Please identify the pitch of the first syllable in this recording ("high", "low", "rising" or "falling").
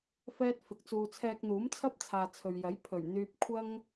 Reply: high